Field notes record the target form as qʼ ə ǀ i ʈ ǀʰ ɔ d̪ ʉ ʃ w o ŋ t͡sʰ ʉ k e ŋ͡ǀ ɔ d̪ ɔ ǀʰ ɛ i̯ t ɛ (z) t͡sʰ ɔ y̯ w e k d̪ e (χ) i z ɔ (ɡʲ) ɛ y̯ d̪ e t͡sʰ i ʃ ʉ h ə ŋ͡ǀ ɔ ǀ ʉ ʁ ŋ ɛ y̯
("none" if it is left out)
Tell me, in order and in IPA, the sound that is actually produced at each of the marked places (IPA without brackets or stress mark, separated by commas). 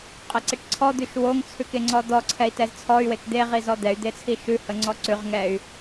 z, ʁ, d̪